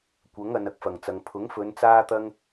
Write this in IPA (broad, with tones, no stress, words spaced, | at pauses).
kʷɐ˨˥ŋɐ˨n ɐ˧k̚fɐ˨˩ŋt͡sɐ˨ŋ pʰʊ˨˥ŋfɵ˨˧n t͡saː˥t̪ɐ˥ŋ